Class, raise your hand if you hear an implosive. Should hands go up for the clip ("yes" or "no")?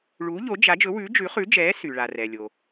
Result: no